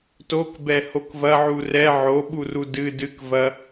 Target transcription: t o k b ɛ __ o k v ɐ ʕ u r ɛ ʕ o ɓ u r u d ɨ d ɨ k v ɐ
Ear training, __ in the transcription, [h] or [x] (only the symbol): h